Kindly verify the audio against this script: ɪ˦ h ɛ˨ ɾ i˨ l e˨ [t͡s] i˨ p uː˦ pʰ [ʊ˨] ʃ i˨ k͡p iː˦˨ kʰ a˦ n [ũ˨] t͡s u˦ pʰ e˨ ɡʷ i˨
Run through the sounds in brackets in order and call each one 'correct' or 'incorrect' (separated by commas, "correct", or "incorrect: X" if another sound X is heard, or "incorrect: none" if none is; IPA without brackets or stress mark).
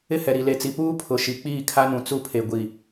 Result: correct, correct, correct